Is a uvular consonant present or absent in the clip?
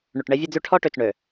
absent